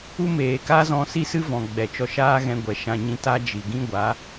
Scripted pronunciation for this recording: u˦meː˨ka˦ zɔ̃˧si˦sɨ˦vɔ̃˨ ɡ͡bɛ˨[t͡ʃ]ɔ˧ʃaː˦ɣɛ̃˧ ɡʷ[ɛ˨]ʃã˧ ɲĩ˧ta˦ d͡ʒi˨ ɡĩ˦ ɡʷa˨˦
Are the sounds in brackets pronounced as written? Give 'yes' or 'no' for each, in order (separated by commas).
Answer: yes, yes